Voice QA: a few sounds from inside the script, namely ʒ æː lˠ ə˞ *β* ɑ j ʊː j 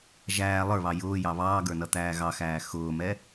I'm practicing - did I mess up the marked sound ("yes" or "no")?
no